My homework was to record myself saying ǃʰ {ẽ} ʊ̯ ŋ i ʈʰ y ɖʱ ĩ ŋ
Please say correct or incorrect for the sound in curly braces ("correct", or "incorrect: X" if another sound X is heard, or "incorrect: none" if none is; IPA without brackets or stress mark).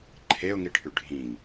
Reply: incorrect: e